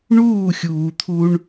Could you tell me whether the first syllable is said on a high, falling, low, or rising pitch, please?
falling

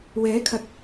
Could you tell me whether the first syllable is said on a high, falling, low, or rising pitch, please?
rising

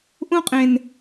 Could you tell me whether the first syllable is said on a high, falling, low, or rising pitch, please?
high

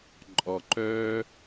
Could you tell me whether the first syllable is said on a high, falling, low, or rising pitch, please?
low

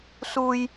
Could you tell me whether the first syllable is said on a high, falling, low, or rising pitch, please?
high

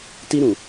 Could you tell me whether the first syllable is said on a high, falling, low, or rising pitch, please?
high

